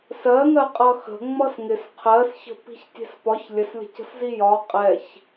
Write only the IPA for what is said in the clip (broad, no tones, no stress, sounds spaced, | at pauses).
s ɜ ŋ ɜ qʼ ʌ x ə̤ ŋ͡m ʌ s ŋ ɪ s qʰ ɜ s ç ə̤ p i̤ ç tʲ ɛ̤ s p ɒ ç lʲ ə s lʲ ə̤ c ə̤ s z i j ɒ qʼ ɛ ç